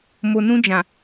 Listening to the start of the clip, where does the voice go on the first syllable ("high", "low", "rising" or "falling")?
low